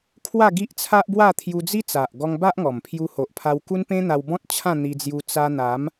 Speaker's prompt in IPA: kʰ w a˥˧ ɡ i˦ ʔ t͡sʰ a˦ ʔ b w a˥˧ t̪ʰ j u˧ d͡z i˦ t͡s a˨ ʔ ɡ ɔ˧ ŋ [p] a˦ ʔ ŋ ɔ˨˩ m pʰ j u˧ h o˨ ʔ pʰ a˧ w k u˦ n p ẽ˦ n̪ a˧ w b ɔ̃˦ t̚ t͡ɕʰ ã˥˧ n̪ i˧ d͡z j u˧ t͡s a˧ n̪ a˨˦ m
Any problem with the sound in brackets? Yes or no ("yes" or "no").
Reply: yes